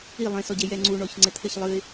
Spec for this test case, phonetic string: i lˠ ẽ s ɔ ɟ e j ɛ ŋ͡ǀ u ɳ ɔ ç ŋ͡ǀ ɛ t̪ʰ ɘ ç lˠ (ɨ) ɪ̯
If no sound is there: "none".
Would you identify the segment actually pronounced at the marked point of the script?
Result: ɨ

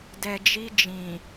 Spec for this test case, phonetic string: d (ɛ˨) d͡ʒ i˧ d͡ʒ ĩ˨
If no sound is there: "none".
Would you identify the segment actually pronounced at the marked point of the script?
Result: ɛ˨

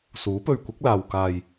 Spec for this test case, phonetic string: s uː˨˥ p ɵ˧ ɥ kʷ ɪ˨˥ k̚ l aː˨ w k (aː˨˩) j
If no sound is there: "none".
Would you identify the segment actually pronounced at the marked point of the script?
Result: aː˨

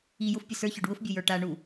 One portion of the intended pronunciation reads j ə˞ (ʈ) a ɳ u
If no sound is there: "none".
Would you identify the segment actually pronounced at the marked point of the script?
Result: ʈ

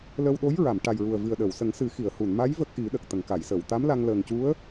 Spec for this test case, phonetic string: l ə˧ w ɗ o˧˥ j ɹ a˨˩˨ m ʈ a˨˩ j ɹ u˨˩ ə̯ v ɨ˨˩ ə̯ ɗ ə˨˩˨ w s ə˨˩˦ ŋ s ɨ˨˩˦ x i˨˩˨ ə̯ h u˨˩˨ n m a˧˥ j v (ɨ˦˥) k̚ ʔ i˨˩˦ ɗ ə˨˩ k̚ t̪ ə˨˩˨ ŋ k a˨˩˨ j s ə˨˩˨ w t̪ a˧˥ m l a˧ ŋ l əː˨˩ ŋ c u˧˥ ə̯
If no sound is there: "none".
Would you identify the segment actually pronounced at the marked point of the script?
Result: ə˦˥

